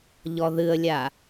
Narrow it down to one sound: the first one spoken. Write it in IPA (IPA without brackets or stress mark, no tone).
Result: ʎ